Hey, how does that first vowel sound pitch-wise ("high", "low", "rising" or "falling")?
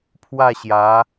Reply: falling